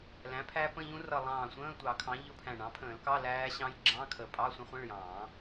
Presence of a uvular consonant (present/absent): present